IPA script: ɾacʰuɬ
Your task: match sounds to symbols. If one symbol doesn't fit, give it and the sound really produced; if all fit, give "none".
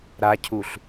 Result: none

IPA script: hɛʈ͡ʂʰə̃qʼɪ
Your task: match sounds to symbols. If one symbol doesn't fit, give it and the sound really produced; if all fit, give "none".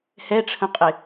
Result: none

